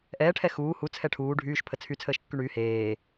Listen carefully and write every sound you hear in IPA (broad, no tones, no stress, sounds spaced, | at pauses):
ʔ ɛː ʈʰ ɛ x uː h u t͡sʰ ɛ ʈʰ uː ɖʱ yː ʃ pʰ ə t͡sʰ y t͡sʰ əː ʃ kː y ɳ yː h eː